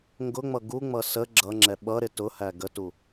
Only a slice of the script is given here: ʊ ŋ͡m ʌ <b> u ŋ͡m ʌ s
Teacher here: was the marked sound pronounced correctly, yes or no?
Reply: no